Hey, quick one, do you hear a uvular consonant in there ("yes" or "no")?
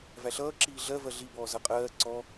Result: yes